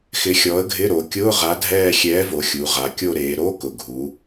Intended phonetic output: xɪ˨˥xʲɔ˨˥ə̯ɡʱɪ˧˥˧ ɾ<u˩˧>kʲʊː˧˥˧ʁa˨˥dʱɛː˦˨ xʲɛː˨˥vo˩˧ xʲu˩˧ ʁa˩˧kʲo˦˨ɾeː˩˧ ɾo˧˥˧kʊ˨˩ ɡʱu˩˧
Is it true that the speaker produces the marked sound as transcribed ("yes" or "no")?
no